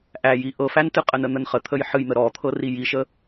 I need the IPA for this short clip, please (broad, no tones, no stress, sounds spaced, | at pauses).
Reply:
ʔ æ j i ʔ ɤ f æ n t ɨ qʼ ə n ə n̪ ə n χ ə t̪ʰ ə j ħ ɨ j n̪ ə ɾ ɔ t̪ʰ ɤ r i j i ʃ ə